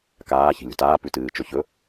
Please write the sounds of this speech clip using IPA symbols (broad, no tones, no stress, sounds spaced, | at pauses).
k aː ç i̤ lʲ ṳ t aː p ʉ t ɨː t͡ʃ ɵ ç ɵ